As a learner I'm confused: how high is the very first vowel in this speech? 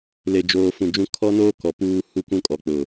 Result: mid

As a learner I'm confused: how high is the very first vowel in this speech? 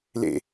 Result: mid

